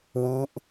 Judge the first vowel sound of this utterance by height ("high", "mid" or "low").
high